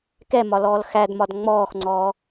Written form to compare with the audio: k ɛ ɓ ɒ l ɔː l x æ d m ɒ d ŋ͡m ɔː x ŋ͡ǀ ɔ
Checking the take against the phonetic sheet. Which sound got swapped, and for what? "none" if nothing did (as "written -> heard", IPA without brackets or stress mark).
ɓ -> m